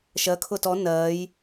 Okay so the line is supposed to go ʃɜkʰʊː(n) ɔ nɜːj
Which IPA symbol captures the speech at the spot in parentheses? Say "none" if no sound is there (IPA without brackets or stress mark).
t